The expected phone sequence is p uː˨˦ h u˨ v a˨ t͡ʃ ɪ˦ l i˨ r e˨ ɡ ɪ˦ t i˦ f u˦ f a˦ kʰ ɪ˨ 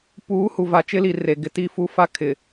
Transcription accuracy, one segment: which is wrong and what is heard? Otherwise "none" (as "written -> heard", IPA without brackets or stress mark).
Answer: none